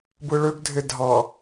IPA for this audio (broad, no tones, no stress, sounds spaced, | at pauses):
b ɯ ɭ ø ɡ dʱ e dʱ ɑ